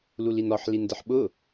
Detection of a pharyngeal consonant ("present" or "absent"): present